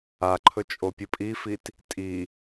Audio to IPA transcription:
a ǃʰ ɵ t͡ʃʼ o pʲ ɨ pʼ i f i t | tʼ i

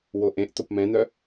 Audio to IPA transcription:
w o ʔ ẽ ʔ t o p m ɛ̃ n œ

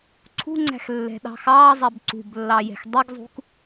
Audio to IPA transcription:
ǀʰ ṳ ŋ͡ǀ æ̤ x lː ɛ̤ ɗ ɑ̤ x ɑ zˤ ɛ b ǀ ṳ b lː ɑ j ɛ̤ x dˤ i ɡ zˤ ṳ k

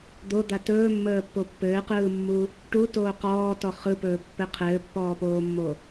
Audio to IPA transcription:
d̪ o d̪ a t ɵː mː əː pː o pː ɘː q ɯː mː u | ʈ u t oː q ɔː t ɔ χ ɯ p ɵː pː ɘ qʰ ɘː pː ɔː p oː mː o

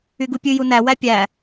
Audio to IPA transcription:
y ɡ u pʲ ʉ j u n æ w æ pʲ æ

